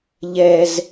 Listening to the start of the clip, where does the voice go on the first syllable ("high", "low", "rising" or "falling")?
high